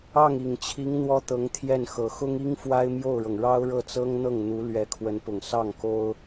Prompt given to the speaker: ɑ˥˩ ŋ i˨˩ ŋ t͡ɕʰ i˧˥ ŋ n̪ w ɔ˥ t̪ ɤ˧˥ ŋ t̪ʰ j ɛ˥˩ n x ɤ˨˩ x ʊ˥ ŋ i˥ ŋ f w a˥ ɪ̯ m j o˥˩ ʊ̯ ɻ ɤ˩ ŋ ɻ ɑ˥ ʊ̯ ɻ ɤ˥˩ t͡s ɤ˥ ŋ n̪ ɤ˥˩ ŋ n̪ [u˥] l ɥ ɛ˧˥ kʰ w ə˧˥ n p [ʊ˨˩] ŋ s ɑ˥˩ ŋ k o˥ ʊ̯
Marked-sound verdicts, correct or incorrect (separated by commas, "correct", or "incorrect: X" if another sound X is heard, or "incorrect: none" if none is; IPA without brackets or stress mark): incorrect: u˧˥, correct